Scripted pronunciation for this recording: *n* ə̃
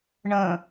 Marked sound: incorrect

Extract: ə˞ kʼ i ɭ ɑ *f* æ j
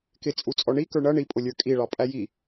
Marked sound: incorrect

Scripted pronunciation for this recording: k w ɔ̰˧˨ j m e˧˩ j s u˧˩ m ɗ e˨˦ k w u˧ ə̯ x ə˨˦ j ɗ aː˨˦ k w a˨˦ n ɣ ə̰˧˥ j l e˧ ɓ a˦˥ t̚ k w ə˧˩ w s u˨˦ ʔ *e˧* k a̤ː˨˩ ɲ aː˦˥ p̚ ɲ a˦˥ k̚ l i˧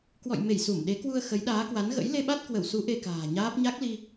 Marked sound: correct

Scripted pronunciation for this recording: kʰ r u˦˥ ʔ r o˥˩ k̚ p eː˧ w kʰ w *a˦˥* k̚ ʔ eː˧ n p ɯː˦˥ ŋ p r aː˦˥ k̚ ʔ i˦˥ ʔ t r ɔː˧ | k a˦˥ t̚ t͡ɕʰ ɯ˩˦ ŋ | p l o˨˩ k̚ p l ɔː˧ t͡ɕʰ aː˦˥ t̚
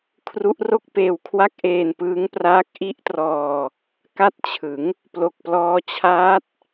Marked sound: incorrect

